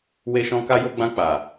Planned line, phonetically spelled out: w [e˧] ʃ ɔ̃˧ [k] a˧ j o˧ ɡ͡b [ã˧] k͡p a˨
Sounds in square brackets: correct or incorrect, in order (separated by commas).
correct, correct, correct